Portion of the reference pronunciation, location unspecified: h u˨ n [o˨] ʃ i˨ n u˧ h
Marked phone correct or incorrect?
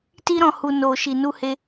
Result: correct